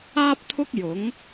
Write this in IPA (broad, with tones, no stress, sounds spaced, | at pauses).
aː˥ p̚ t̪ʰ ʊ˥ k̚ j ʊ˨˥ ŋ